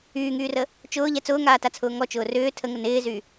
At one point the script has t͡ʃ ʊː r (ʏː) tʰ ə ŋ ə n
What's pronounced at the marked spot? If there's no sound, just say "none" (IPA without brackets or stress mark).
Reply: ʏː